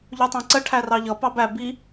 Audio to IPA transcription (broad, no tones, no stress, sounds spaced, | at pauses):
ʎ u tˤ æ̃ ǀ ə ʈʰ æ r ɑ ʎ ʌ p ɑ b æ b i